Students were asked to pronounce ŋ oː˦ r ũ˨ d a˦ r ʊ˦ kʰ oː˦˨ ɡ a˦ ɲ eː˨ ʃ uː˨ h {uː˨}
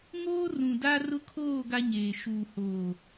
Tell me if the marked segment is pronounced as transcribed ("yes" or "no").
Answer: no